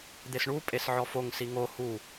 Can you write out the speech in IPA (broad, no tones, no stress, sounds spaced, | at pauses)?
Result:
d̪ e s ɳ u pʼ e s ʕ ɔ f o ŋ s i ŋ o h u